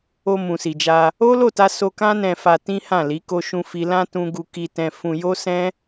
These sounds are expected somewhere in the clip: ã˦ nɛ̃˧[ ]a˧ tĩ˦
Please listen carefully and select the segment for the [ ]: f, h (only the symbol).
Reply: f